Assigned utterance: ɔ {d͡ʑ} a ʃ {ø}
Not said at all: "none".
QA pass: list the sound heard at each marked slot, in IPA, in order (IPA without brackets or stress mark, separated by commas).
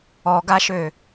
ɡ, ø